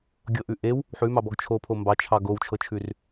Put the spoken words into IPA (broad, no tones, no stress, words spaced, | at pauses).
ɡʲɤʔʉ ʔew | ħʉmɑbɔɡ t͡ʃʰopʰo mbɑt͡ʃʰɑ ɡowt͡ʃʰɤt͡ʃʰʉr